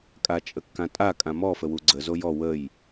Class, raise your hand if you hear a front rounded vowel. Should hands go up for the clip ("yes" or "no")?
no